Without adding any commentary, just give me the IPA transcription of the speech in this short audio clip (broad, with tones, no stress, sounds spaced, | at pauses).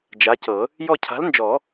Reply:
d͡ʒ a˨˥ c ɤ˨˩˦ | j ɔ˦˨ cʰ a̤˨˥ l n d͡ʒ ɔ˨˩˦